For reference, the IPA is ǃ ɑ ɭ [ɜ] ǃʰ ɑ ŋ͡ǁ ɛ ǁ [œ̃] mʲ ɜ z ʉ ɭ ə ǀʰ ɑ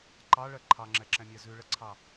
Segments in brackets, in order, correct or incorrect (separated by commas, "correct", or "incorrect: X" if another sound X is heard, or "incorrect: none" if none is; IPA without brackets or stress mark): correct, incorrect: ɛ̃